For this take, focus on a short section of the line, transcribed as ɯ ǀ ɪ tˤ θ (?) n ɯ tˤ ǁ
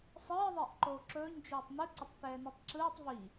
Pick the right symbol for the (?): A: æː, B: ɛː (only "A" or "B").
B